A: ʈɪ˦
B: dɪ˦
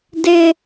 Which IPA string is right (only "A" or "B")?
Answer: B